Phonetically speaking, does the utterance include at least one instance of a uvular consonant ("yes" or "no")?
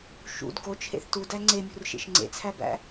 no